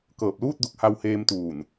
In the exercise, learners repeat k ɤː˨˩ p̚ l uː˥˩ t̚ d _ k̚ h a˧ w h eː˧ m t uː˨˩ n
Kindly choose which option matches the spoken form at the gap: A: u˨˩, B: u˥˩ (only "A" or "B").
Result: A